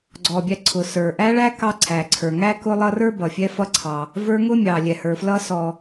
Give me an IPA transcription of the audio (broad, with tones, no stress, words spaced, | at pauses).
ɡ͡ǀɔ˩bʲæ˨ǀʰʊ˩ sə˞˩ʔæ˦ɭæ˦ kɑ˦ǀʰæ˩ǀʰə˞˩ ŋæ˥kʊ˦lˠʌ˦rə˞˥ bʌ˩fʲɛ˦fʌ˦ǀʰɑ˨ | və˞˦ŋʊ˥mʲɑ˩ lʲɛ˩hə˞˩flʌ˦sɔ˨